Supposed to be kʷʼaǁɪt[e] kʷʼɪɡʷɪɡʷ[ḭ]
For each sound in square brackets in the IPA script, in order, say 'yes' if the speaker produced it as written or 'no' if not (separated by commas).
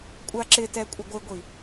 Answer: no, no